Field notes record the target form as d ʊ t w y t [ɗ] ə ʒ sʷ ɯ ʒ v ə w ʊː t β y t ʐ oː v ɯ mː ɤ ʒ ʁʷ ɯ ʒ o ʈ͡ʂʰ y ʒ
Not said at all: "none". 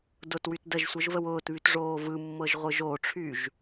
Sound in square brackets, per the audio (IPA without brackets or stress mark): d